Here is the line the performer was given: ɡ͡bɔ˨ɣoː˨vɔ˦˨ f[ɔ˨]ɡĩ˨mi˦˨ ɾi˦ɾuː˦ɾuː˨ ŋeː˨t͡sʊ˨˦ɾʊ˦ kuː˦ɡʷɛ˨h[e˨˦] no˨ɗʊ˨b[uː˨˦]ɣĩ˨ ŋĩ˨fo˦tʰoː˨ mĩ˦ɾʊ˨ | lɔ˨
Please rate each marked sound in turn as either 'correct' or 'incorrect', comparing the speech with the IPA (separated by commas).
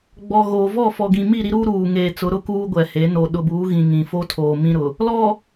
correct, correct, correct